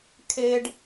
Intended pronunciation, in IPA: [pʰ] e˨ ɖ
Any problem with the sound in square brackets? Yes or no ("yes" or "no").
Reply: yes